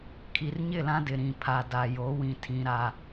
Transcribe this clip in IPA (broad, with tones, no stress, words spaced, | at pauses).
kʰi˨rɲɪ˦˨lã˦dɪ˨ ɾĩ˨ pʰa˨da˨jo˨˦ wĩ˨tʰĩ˨ ɾa˨